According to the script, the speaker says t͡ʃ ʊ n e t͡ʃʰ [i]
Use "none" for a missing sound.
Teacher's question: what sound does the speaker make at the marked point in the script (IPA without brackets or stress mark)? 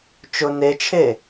e